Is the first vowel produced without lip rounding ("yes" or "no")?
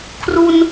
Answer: no